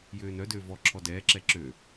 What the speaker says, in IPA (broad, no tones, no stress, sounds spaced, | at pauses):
j øː n œ d øː v ɔ ǁʰ ɔ d ɛː ǁ ɛ ǁ ø